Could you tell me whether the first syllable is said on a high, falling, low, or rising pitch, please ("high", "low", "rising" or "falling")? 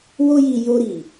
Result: high